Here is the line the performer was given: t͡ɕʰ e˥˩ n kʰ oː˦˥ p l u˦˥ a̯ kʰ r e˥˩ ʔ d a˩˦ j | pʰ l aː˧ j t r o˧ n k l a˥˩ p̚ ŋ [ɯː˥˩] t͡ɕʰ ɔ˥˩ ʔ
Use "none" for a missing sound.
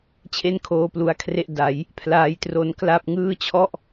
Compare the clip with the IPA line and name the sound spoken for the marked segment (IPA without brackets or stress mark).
ɯː˥˩